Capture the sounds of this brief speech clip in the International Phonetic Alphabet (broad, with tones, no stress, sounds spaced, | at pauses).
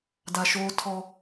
d a˨ ʃ oː˦ tʰ ɔ˦